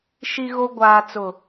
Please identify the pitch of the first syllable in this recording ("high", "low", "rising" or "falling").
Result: low